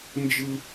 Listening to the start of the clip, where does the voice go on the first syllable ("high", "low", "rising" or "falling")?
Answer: low